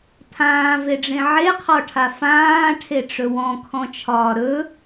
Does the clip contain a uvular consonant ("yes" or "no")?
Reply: yes